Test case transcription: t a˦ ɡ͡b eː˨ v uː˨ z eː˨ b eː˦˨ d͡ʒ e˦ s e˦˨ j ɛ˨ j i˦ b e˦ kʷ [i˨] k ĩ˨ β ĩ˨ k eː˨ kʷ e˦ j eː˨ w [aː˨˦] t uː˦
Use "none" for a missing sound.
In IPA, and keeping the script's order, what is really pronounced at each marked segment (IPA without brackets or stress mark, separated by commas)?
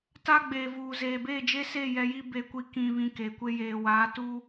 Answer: i˦, aː˨˦